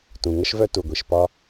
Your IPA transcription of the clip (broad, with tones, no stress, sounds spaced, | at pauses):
t ũ˩ ŋ ə˥ ʃ v œ˥ t u˩ ɡʷ i˩ ʃ p ɒ˥